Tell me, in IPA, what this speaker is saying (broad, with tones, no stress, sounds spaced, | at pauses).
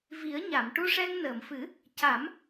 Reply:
v i˨˩˦ ə̯ ɲ a˨˩˨ m ʈ u˧ ʂ ɛ˧ ŋ n əː˨˩˨ m f ɨ˨˩˦ | c a˨˩˦ m